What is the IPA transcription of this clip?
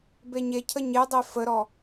beɲecʰə ɲedˤe fəɾɔ

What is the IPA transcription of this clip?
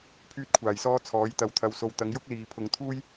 pʰyː˧t̚kʷʰaː˨˩jsɔː˧ t͡sʰɔː˨˥jt̪ɐ˧wt̪ʰɐ˧wso˧w t̪ɐ˨˧ŋ jʊ˥k̚ liː˨pʰʊ˨ŋt̪ʰuː˥j

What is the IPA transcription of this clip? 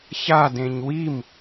çadẽɲ wim

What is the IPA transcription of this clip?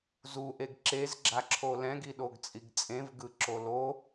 zuʔeɡ ǁezɡ͡ǁaǁʰo lɛ̃ɡiɗoɡt͡sʼiɡ t͡sʼẽvɡɯǁo lo

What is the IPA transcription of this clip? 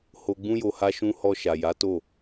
ho˧ɡ͡bũ˦jo˧ ha˦ʃũ˦ hɔ˧ ʃa˨ja˨˦to˦˨

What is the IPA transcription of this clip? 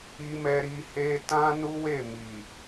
i˧mɛ˧ ɾi˧he˦ tã˦nu˦we˦˨ mi˨

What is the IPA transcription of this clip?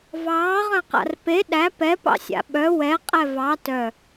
vɑːʁœ̃qa̰r pe ɗæ pɛpɑ̰sʲa̰ ɓœ wɛqʼɛ vɑ tœ

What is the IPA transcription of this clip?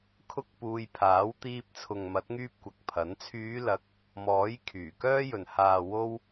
kʰʊ˥k̚puː˧j pʰaː˨˥w t̪iː˧p̚t͡sʰʊ˨ŋmɐ˨˥t̚ ŋyː˥p̚kʷɐ˨k̚pʰɐ˨˥n t͡sʰyː˨˧lɐ˨˥k̚ | mɔː˨˥j kʰyː˨˩kœː˥jɵ˨n haː˨wo˧w

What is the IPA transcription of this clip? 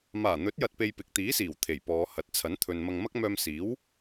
maː˨˩n̪ɵ˨˥t̚jɐ˨t̚pe˨j pɪ˨k̚t̪iː˨˥siː˨˩w t̪ʰe˨˩jpɔː˨˧hɐ˨˥t̚ t͡sʰɐ˨˥nt̪ʰɵ˨nmɐ˧ŋ mɐ˥k̚mœː˧msiː˨˥w

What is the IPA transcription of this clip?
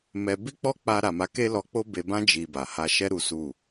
mɛ˧ bi˦k͡pɔ˦k͡pa˧ ɾa˨ma˨˦ke˦lɔ˧ k͡po˦be˧bã˦ d͡ʒi˧ba˨ ha˧ʃɛ˦ ɾu˦su˦˨

